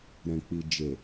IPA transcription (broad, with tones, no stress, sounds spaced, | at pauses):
ɾ ɛ̃˨ k͡p i˨ d͡ʒ e˨